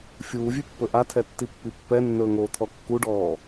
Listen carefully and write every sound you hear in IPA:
fʲ uː vʲ ʉ pː ɵ ʔ a tʰ ɛ tː i pː i pː ɛ nː ɵː ŋ oː t̪ʰ ɔ kː u ɖ ɔː

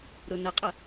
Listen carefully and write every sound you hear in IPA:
ɾ ʊ n ə qʼ ə

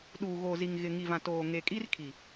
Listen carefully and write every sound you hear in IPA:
ɗ uː˨ ɣ o˨ z i˨ ŋ ɣ ɪ˨ ŋ i˨ v ã˨ t oː˨ ŋ e˨ kʼ i˦ r kʰ i˨

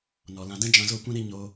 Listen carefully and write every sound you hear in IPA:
n ɔ˨ l ã˧ d ɛ̃˦ d͡ʒ ã˧ z o˦˨ kʷ ɛ̃˦ ɾ i˧ ɲ o˧

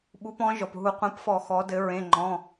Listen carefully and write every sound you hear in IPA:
ɓ u˨˥ p ɔ̃˨˥ ʒ ɔ˩ p ɦ u˧˩˧ qʷ ɛ̃˨˥ p f ɔ˧˩˧ x ɔ˩˧ d ɘ˩˧ ɹ ẽ˩˧˩ ŋ͡ǃ ɔ̃˩˧˩

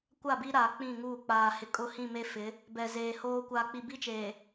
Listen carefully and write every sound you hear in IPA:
kʷ a˦˨ b i˦ ɾ aː˨ k͡p ĩ˦˨ ŋ uː˦˨ k͡p aː˨ h ɪ˨ kʼ ʊ˦ h ĩ˦˨ m e˦ f ɪ˨˦ | b ɛ˨ z eː˨ h oː˦ kʷ aː˨ k͡p i˨ b i˦ t͡ʃ eː˨

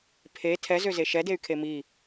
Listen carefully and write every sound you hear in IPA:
pʰ e tʰ ɛ z ø z e ʃ ɛ d e y̯ kʰ e m i

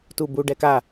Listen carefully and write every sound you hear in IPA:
t u b u ɖ ɛ k a

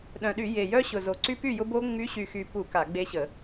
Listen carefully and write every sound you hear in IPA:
ɗ œ̃˨˩ ɗ y˧˩˧ j e˨˩ j œ˦ ɕ ʊ˨˩ z o˨˩ ǀ y˦ p y˥˩ j ʊ˦ b o˦ ŋ͡m y˨˥ ɕ y˨˩ x y˨˩ p u˧˩˧ k a˧˩˧ ɡ͡b e˦ ɕ ə˧˩˧

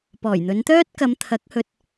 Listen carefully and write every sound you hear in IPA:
p ɔː˨˩ j n̪ ɵ˨˧ n t̪ œː˥ t̚ k ɐ˨˧ m t̪ʰ ɐ˨˥ k̚ h ɵ˧ t̚

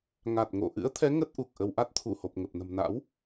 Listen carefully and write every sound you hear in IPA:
ŋ a˨˩ t̚ ŋ o̰˧˨ ʔ ɨ̰˧˥ ə̯ t̪ʰ ɛ˨˦ ŋ ə˦˥ t̚ ʔ u˨˩ k̚ ʔ ə˧ w ʔ a˦˥ t̚ t̪ʰ u˧˩ h o˨˩ p̚ ŋ ə˨˩ p̚ n ə̤˨˩ m n a̰˧˥ w

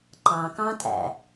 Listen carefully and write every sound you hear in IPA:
ǃ ɑ̃ k ɑ̃ tʼ æ̰

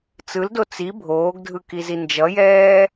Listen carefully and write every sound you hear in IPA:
t͡s ɯ l d o t͡s i bʱ oː ɡ dʱ ɯ k i z i n d͡ʒ ʌ j ɛː

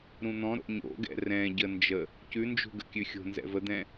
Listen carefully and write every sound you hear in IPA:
ɾ ũ n̪ ɔ̃ ɾ o̰ ɲ o̰ ɡ ɛ̰ r ɛ̃ ɟ ə n d͡ʒ ə | c ʉ n d͡ʒ ṳ ɡ ə̰ kʲ ʉ xʲ o̤ n z ɛ̰ v ə d̪ ɛ̃

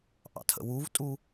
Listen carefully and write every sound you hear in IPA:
ʔ ɑ̰ tʰ ə̰ w u v tʼ u

